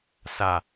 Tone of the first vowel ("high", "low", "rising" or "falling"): low